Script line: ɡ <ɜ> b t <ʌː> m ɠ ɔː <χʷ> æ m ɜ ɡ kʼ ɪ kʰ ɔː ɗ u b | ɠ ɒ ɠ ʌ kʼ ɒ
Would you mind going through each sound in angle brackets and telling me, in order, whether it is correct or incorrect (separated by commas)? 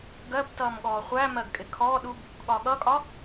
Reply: correct, correct, correct